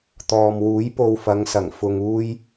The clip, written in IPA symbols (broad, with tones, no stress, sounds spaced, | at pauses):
t̪ ɔː˨ m w uː˨˥ j p o˧ w f ɐ˨˧ ŋ s ɐ˨˩ ŋ f ʊ˨ ŋ uː˧ j